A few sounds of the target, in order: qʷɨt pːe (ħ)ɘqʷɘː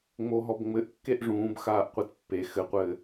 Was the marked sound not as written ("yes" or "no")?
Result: yes